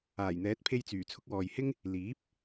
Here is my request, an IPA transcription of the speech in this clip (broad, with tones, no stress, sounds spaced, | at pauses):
aː˨˩ j n̪ ɛː˨˥ t̚ pʰ e˧ j t͡s yː˨˩ t͡sʰ ʊ˧ k̚ w ɔː˨ j h ɪ˥ ŋ | l iː˨˥ p̚